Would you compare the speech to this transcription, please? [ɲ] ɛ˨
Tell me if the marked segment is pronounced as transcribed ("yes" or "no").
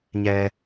yes